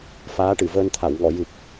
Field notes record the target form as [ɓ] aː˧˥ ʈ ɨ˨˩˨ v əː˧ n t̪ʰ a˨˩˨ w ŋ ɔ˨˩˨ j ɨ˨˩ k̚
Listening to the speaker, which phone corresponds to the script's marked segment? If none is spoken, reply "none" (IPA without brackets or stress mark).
f